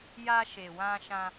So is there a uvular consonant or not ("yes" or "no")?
no